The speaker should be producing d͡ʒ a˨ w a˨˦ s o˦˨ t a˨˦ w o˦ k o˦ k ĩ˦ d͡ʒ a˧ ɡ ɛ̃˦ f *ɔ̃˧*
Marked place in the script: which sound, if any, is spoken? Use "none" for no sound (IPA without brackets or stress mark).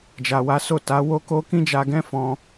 ɔ̃˧